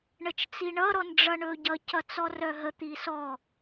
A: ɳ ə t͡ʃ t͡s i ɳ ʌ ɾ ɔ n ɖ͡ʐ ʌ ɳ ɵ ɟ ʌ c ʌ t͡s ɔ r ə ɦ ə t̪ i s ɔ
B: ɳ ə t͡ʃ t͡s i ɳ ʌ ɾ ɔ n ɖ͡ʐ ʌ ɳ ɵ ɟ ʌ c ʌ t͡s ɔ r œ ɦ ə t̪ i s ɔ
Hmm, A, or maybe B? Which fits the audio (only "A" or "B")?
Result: B